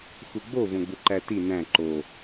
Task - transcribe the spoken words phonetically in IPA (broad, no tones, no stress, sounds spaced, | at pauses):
x u ɡ͡b o v õ ɡ͡b u ǃ æ t i n æ̃ ǃ o